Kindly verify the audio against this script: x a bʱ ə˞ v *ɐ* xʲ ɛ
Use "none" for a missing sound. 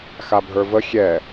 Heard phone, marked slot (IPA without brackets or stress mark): ə